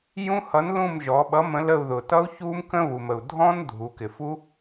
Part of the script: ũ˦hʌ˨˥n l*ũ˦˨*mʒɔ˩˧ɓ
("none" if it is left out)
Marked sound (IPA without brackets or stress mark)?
ũ˦˨